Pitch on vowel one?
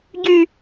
low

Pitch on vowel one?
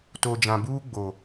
low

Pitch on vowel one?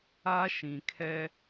high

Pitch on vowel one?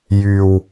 low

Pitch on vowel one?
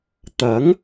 rising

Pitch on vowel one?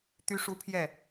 high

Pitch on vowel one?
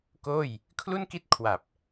falling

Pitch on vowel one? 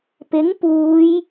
rising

